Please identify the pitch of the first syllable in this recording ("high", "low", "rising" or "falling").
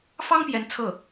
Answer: high